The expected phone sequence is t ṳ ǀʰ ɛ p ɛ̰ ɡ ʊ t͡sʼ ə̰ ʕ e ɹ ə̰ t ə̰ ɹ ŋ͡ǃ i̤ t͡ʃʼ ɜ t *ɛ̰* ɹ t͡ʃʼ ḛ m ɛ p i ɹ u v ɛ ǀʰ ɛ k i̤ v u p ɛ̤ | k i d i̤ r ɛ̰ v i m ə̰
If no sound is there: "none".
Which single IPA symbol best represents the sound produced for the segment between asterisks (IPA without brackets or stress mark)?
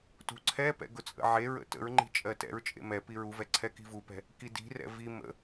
ɛ̰